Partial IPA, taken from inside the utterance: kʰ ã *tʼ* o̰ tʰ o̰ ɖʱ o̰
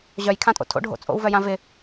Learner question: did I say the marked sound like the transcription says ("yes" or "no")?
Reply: yes